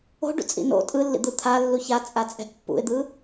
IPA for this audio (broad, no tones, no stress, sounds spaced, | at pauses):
o̤ ɖ ṵ t͡sʼ ḭ n o̰ tʼ ɯ lː ḭ d̪ ɯ t̪ʰ a lː u ç a t͡sʼ a t͡sʼ ɛ̤ ʔ pː ṵ ɪ̯ d̪ ɯ